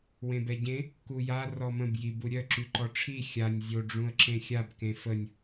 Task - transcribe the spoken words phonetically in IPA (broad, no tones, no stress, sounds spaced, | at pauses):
w ẽ b ɛ ɟ ẽ | k u j a r ɔ m ə̃ b j i b u ɾʲ œ ǁ y ǃ ɔ ʈ͡ʂʰ i xʲ a nʲ zʲ o ɖ͡ʐ ũ ə̯ ǁ ẽ xʲ a b k ẽ f ə nʲ